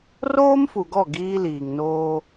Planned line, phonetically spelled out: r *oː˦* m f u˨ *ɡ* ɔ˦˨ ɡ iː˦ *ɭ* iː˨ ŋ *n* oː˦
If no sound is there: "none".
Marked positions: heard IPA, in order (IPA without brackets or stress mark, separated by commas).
oː˦, ɡ, l, n